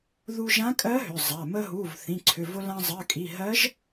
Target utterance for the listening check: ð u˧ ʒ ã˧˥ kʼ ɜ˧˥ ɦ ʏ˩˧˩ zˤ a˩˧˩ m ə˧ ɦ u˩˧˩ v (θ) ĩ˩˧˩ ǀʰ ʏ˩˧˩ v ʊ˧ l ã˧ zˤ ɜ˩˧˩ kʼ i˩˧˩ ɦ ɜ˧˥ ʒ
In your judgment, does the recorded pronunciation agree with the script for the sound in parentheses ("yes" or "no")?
yes